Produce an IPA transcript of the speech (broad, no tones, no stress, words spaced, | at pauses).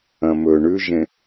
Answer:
ɐ̃mɵ ɳʉʒẽ